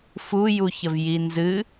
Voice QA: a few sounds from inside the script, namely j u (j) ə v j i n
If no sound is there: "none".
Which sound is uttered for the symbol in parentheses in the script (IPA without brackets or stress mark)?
ç